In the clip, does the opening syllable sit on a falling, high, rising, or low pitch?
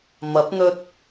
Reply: rising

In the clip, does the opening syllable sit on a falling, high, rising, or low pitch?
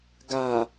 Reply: low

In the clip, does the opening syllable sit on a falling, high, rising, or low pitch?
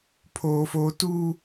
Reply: high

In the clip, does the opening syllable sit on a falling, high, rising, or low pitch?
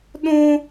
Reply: high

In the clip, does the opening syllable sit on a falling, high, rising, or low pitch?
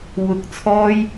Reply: low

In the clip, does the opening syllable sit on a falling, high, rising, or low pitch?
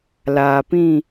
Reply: low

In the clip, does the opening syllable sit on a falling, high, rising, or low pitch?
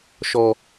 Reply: high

